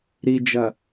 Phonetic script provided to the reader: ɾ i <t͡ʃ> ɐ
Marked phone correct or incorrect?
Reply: incorrect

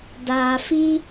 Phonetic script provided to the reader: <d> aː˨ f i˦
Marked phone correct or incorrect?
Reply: correct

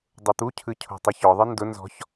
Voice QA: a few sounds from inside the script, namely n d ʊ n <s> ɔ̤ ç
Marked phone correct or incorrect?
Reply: incorrect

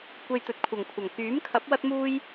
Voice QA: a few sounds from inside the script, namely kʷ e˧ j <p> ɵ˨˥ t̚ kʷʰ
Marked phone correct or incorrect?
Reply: incorrect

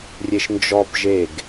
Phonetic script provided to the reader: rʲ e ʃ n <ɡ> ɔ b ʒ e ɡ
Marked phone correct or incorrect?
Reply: incorrect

